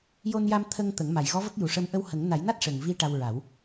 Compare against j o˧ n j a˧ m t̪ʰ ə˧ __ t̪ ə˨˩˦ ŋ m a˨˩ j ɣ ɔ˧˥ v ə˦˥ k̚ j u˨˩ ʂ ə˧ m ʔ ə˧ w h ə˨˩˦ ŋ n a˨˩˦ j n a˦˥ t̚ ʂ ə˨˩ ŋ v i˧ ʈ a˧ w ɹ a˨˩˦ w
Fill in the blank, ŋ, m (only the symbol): ŋ